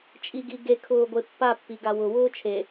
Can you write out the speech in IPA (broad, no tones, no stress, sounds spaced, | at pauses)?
t͡ʃʼ i ɡ i ɡ e kʰ ʊː ɡʷ e pː a pː i ɡ a w ʊ w ʊː t͡ʃʰ e